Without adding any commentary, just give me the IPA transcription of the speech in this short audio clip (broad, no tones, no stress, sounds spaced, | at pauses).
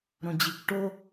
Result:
ɾ õ d͡ʑ i kʷ ʈ o